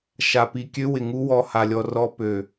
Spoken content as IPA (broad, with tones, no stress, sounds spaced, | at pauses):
ʃ a˨ p i˨ kʲ ø˦ w ɪ˨ ŋ u˦ w ɔ˨ h a˨ lʲ ɔ˨ r ɔ˦ p ø˨